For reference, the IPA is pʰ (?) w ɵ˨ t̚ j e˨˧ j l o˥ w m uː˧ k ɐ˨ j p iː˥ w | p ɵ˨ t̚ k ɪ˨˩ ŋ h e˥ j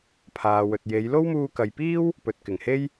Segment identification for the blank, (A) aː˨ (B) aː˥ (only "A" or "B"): A